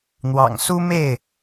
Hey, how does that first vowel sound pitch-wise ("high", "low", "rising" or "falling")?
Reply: low